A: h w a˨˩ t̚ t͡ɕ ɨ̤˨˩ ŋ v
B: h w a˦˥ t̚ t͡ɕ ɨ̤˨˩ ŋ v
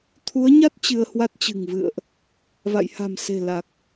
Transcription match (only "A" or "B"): B